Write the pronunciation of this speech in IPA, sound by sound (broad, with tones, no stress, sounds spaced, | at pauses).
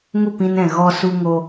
ŋ u˦˨ p ĩ˧ n ɛ̃˨ ɣ ɔ˧ s u˧ ŋ o˧